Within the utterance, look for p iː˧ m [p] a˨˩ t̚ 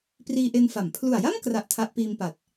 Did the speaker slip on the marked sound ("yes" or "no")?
no